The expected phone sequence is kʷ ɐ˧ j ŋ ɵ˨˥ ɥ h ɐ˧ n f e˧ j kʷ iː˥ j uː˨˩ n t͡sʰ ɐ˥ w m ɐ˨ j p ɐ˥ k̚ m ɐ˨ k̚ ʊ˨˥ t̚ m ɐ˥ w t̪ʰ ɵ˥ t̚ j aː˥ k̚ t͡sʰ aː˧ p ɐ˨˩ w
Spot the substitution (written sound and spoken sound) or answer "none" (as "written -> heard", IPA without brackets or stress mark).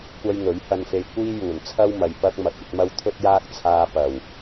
ʊ˨˥ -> ɵ˨˥